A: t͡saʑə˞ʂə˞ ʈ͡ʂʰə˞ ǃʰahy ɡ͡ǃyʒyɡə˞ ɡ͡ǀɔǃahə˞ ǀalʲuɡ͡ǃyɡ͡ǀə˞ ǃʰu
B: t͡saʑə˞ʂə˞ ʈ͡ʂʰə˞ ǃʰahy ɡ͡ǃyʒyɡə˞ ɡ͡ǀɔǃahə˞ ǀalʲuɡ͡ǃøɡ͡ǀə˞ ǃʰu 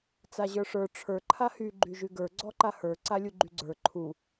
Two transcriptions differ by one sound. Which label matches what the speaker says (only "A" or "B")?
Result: A